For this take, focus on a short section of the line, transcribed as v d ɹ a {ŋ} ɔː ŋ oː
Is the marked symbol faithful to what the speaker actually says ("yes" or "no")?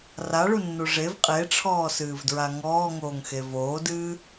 yes